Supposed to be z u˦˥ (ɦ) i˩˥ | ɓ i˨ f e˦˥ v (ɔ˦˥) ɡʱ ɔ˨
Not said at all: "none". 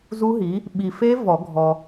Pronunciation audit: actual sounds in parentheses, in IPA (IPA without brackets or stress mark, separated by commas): ɦ, ɔ˨˩˦